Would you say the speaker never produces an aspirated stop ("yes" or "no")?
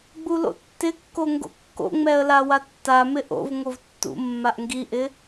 yes